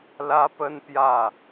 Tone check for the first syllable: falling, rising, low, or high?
high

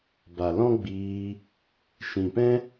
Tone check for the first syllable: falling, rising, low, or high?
low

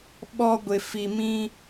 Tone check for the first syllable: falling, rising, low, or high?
high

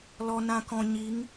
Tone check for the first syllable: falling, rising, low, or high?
low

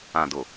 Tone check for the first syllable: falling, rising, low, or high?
low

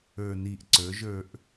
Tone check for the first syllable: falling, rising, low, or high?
low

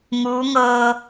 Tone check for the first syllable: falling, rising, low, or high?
rising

